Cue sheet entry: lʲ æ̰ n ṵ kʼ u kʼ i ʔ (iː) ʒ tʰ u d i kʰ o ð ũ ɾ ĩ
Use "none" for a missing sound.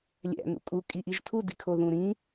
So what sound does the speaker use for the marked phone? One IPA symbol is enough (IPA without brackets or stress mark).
i